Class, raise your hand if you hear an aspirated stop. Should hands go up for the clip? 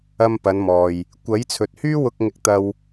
yes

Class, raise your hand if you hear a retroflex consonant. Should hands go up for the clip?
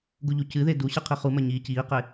no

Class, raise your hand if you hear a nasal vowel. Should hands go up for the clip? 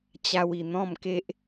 yes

